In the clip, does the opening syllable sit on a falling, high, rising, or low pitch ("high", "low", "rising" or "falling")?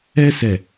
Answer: high